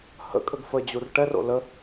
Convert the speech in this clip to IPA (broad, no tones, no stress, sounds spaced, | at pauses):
h ə̰ kʼ ə ɡ f ə d͡ʑ u r ʈ ɛ r o̰ l ə